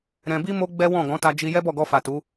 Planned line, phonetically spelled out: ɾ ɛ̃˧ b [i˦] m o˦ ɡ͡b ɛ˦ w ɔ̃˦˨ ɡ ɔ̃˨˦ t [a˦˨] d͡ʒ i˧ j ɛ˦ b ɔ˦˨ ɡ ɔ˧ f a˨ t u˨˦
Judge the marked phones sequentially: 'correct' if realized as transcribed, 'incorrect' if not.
correct, incorrect

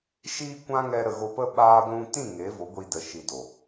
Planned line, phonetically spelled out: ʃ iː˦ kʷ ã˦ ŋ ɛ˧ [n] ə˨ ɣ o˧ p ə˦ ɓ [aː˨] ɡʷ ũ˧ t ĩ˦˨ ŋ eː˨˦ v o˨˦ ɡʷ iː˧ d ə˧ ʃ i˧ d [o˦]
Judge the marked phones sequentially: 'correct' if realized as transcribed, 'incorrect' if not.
incorrect, incorrect, incorrect

